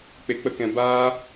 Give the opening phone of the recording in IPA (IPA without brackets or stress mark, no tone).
k͡p